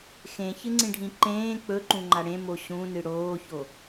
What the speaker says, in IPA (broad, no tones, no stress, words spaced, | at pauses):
xẽçɨŋ͡ǀĩɖʱĩ ǃẽː k͡pɵǃũŋ͡ǃa ɽẽmo ɕũnɨ ɽoːço